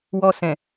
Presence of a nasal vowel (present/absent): present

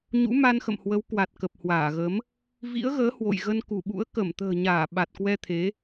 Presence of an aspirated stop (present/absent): present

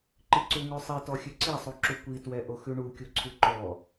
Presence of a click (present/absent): present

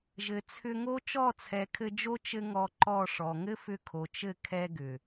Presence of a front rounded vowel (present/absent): present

